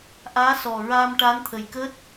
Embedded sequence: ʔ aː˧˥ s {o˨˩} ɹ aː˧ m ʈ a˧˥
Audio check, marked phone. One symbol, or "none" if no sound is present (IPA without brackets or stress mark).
ɔ˨˩